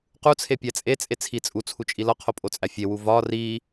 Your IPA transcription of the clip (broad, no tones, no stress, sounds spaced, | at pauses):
q u t͡sʰ e pʲ æ t͡sʼ e t͡sʼ e t͡sʰ i t͡sʼ u t͡sʰ u t͡ʃʼ i l ɒ qʰ o pʼ o t͡sʼ æ fʲ e w u v ɒ r i